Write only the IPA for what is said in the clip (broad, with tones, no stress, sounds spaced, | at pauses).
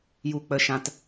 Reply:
j u˨ k͡p ə˨ ʃ ã˨ t